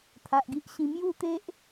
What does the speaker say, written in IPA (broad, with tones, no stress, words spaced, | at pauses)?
t̪ʰa˨ʔɡi˦ʔɕĩ˧ mju˥˧t̪e˦ʔ